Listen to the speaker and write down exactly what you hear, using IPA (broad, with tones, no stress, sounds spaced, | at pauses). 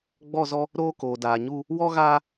ɡ͡b ɔ˦˨ z ɔ˦ | ɾ oː˦ k oː˨ d aː˨ ɲ u˦ | w ɔ˦ ɣ aː˦